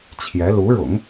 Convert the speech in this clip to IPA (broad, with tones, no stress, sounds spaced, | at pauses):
t͡ɕʰ j ɛ˧˥ l u˧˥ ɻ ʊ̰˨˩˦ ŋ